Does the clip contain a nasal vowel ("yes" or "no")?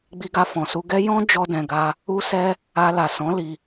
yes